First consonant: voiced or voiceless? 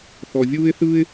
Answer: voiceless